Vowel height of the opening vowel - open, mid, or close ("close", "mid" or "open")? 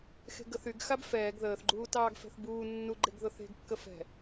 mid